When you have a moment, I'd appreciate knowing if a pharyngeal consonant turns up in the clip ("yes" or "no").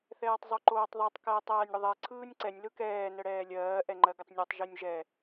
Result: no